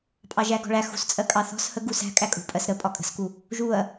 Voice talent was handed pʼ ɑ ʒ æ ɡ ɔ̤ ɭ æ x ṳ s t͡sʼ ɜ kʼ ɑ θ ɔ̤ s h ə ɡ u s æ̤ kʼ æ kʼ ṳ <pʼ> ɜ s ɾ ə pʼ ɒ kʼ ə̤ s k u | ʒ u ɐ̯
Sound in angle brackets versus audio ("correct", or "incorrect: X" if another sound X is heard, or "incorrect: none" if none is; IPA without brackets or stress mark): correct